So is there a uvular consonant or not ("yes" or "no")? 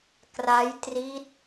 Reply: no